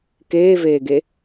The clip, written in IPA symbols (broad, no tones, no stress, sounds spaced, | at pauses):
k eː v eː ɡ e